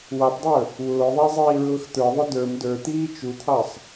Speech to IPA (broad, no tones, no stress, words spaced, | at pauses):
wɑpdˤə˞ | wʊːðˤæ zˤiːɹʊːxt̪ə˞ðˤʊ də˞m də˞t̪iː t͡ʃut̪ʰɑsˤ